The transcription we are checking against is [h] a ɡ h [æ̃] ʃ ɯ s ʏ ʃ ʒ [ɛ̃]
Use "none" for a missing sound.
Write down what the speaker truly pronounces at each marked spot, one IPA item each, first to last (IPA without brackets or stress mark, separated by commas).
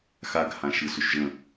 x, ã, ə̃